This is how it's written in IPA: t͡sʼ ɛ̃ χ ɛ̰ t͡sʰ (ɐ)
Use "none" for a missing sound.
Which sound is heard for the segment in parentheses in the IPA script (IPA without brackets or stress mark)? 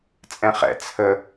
ə